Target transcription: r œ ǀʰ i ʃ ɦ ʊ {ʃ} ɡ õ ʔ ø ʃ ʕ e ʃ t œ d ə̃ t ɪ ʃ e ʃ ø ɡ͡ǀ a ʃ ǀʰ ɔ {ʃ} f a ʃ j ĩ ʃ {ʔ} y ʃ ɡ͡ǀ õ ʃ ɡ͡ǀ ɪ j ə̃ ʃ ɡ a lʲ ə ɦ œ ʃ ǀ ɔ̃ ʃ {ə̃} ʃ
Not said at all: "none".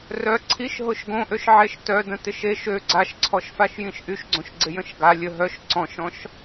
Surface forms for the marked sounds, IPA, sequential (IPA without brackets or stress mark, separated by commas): ʃ, ʃ, ʔ, ɔ̃